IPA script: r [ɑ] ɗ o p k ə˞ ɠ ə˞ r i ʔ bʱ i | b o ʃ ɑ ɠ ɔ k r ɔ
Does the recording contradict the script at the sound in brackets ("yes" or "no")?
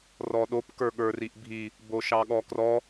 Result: yes